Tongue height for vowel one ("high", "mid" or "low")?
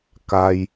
low